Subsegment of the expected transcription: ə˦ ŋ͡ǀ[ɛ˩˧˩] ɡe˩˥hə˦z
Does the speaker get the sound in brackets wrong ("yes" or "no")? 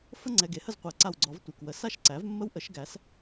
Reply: no